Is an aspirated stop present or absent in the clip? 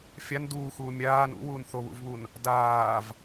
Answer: absent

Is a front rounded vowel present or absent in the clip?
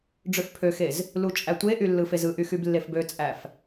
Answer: present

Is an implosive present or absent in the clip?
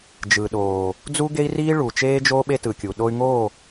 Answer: present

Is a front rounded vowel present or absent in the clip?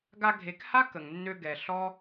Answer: present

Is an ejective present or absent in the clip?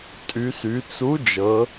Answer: present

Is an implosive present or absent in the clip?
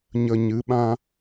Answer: present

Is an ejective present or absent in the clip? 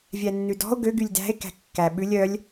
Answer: absent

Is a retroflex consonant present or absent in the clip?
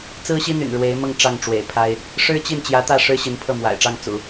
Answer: present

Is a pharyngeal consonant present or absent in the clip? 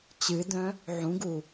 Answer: present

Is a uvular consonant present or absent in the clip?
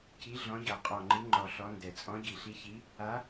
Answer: present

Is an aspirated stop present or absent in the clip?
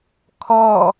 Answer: present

